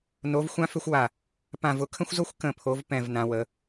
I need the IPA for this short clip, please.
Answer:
no˨˦vxʷã˦fʏ˦xʷwa˧˩ | pã˧˩vʊ˨˦ kʰə̃˦xʷzo˦xʷ kə̃˧˩pʰo˨˦vpɛ̃˧˩v nã˨˦wə˨˦

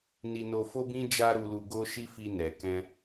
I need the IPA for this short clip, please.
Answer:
ni˧no˧fo˦bĩ˦ d͡ʒa˦ɾu˧lu˧ ɡo˦ʃi˦ fi˧nɛ˨kɛ̃˧

